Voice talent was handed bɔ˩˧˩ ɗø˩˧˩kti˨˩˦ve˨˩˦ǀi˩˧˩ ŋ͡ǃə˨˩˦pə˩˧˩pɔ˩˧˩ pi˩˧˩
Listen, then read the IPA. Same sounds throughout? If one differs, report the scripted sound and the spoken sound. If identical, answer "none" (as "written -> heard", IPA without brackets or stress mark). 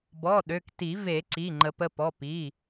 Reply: none